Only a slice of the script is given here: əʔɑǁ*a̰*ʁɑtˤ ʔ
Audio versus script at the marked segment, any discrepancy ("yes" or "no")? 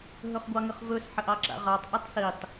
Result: no